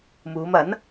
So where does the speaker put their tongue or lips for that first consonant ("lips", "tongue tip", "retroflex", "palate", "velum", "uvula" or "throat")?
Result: lips